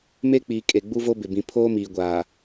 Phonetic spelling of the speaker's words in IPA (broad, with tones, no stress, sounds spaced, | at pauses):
m e˦ k͡p iː˨ kʼ e˨ ɡ͡b u˦ v o˦ b ɪ˨ b ĩ˨ pʰ oː˦ m iː˨ ɡʷ aː˨